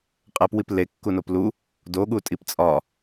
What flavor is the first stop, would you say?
ejective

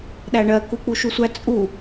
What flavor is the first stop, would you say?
implosive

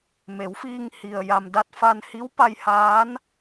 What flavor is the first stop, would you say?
plain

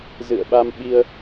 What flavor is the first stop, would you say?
implosive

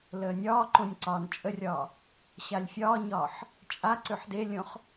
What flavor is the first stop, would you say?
click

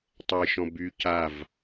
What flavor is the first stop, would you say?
plain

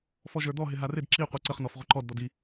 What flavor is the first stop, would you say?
plain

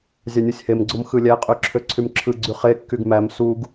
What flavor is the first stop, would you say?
click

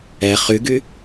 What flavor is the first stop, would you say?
plain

